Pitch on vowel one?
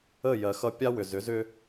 falling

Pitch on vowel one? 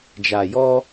low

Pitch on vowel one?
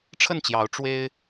falling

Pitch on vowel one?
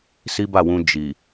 high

